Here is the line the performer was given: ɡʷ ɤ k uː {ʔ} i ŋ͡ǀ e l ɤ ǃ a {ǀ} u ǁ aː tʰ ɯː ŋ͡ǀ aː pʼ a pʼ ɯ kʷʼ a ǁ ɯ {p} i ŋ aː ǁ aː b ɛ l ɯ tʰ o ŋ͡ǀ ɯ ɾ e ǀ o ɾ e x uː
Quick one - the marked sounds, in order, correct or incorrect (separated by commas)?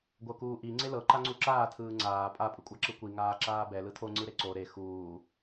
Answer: correct, incorrect, incorrect